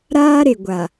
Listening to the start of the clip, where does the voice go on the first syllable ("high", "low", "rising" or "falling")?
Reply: high